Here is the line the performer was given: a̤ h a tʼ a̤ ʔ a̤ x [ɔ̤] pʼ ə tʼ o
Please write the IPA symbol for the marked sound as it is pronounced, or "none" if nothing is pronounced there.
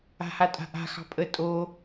ɑ̤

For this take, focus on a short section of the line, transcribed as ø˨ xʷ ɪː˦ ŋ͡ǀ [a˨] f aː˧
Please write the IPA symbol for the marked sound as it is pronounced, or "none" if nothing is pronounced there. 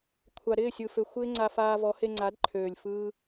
a˧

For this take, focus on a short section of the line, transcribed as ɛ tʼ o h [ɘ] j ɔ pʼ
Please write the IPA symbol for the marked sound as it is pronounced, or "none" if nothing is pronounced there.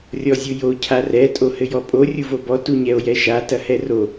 ɘ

